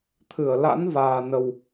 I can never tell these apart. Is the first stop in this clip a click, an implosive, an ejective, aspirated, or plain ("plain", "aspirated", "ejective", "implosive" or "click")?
aspirated